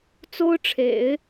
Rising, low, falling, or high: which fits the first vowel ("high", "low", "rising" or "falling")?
high